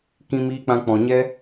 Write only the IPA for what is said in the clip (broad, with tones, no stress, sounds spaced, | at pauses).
k ĩ˦ m iː˦ k͡p ã˦ k͡p ɔ̃˨ ɲ ɛ˦